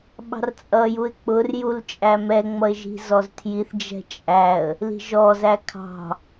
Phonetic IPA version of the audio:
ɓ ɑ̤ r t͡sʼ ʌ j u ɪ̯ k͡p ʊ r j u l t͡ʃʼ æ m ɛ ŋ͡m ʌ ɪ̯ ʒ i̤ z ɔ z tʰ j i θ d͡ʒ ɛ̤ t͡ʃʼ æ ə̯ | l i̤ ʒ ɔ z æ kʰ ɑ̤

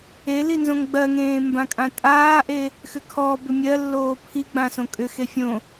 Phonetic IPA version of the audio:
e l i n z õ ŋ ɡ͡b ɜ ŋ ẽː m b ã kʼ ã tʼ aː ʔ e | x ʏ kʰ ɔ b ʏ mʲ ɜ lː oː pʰ i ɡ͡b ã s õ kʼ ʏ x e fʲ õ

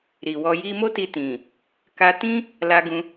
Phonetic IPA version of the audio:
ɾ i˨ w ɔ˧ j i˧ m o˦ t i˧ t ĩ˨ | k a˧ t ĩ˦ | l a˧ ɡ ũ˧

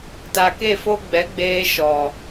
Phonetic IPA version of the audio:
t a˨ k e˦˨ f o˦ ɡ͡b ɛ˨˦ ɡ͡b eː˦ ʃ ɔ˨

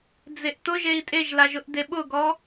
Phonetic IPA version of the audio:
d͡z e ʔ t ʊ ʒ e i̯ tʼ e ʒ l a ʒ ʊ ʔ d e ɓ ʊ ɡ ɔ

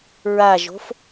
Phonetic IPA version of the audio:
ɹ a ʒ o̤ f

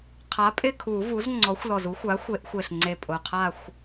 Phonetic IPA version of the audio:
qʰ a˩˥ pʼ ɪ˦˨ kʰ u˨˩˦ v u˩˥ z ŋ͡ǀ ɔ˩˥ xʷ l ɔ˨˩ z u˩˥ xʷ a˩˥ xʷ e˨˩˦ ʔ xʷ e˨˩ ɬ ŋ͡ǀ e˨˩ pʼ ʊ˨˩ qʰ a˦˨ xʷ

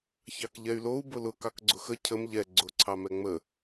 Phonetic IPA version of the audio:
ç ɑ k ʎ ɛ y̯ l o u̯ b ʊ l ʊ k ɑ k ɡ͡ǀ ʊ x ə cʰ ə m ʎ ɛ ɡ͡ǀ ʊ ǀʰ ɑ m ɛ ŋ͡m ə

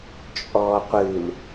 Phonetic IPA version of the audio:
t͡ʃʼ ɔː qʷ ɨ l

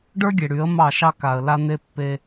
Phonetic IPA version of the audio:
ɖ ə˞˦ ɡʲ e˨ ɽ y˨˦ ə̯ m ɑ˦˨ ʃ ɑ˦ k a˨ ə̯ l a˦ n̪ e˦ pː e˦

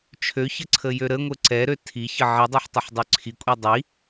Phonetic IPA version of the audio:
t͡ʃʰ ø ç ə ǀʰ ə j ø ɾ ə ŋʷ ə ǀ ɛ ɾ ø tʰ i ç ə ʕ i dˤ ø ħ tˤ ə ħ dˤ ø ǀʰ i kʷʼ i dˤ i

